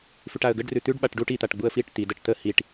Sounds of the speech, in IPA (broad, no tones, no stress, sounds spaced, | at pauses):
f ʉ ʈ a ə̯ ɡ ə ɖ r ʉ t̪ ʉ ɖ ɓ a ʈ ɖ u ʈ i t̪ a ʈ ɡ͡b u ə̯ f i ʈ t̪ i d ə ʈ t̪ ə h i ʈ